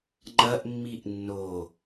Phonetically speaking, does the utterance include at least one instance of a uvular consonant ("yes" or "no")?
no